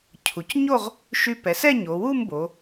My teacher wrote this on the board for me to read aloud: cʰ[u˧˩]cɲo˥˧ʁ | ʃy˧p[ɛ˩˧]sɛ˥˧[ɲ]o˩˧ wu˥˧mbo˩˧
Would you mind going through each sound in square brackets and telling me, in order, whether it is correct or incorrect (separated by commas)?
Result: incorrect, correct, correct